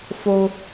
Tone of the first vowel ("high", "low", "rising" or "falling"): high